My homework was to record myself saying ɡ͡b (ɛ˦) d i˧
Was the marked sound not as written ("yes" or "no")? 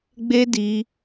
yes